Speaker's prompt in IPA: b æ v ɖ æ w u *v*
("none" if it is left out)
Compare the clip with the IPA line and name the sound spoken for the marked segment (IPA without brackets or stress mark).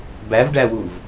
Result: v